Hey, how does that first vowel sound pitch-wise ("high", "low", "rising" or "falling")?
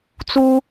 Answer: high